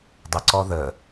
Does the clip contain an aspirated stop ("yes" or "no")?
no